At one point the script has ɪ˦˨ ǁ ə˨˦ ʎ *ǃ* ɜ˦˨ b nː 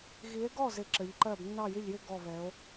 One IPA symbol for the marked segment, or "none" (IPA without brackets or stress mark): ǃ